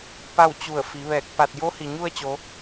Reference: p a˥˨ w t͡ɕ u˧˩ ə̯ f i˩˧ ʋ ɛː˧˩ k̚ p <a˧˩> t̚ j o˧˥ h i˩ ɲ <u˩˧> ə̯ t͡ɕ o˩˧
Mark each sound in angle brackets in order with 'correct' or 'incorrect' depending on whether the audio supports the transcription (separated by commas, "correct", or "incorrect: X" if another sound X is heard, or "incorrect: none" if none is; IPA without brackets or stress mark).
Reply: correct, incorrect: u˥˨